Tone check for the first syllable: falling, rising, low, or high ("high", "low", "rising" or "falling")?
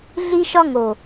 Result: high